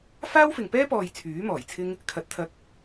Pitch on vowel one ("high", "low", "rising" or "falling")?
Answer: high